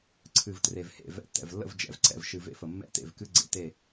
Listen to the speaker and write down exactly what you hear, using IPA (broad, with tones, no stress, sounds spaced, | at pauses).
ǀʰ ɨ˨ v t r e˨ v h ḛ˨ v ɛ̰˨˦ tː ɛ̰˨ v lː ə̰˦˨ v d͡ʒ ɛ̰˨ v ǀ ɛ̰˨ v ʃ ɨ˨ v ḛ˦ f ə˨ mː ɛ̰˦ t ḛ˦˨ v k ɨ˦ ɡ͡ǀ ḛ˨ t e˨